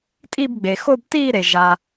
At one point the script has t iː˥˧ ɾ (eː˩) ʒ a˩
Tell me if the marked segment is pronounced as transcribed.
no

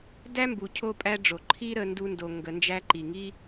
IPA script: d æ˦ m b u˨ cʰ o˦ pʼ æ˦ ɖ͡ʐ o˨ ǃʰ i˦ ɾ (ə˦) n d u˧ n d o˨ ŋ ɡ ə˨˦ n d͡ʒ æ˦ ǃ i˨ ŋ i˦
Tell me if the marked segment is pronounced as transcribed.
no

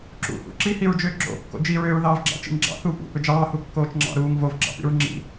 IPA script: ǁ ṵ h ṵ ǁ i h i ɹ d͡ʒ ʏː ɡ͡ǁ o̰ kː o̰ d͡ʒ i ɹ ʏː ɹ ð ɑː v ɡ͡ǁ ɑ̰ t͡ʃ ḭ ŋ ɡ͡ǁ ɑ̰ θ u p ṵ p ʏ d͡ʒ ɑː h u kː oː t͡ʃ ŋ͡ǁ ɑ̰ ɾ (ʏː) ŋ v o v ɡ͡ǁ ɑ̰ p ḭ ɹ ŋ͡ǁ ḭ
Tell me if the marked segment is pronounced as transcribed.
no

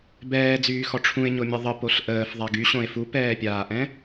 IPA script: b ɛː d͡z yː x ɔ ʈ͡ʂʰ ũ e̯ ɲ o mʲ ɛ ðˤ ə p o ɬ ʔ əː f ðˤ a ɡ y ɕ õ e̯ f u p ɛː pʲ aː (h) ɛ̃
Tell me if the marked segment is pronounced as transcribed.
no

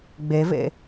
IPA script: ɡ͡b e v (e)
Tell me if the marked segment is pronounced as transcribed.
no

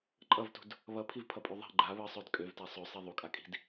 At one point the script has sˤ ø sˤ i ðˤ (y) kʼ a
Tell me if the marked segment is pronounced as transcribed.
no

